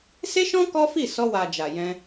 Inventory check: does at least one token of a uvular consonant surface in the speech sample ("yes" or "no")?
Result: no